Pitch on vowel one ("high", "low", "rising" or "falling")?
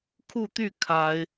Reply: falling